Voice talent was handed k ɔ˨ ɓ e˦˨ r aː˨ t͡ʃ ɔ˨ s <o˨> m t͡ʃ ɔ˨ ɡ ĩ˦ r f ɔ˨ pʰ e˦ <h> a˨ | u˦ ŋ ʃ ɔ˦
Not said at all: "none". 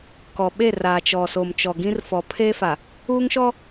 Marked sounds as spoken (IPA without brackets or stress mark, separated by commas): o˨, f